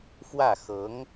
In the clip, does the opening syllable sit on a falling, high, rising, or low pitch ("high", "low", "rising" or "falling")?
falling